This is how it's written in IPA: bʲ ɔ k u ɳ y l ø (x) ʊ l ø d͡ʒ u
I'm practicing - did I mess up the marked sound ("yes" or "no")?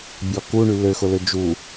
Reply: no